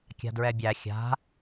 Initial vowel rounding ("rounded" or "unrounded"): unrounded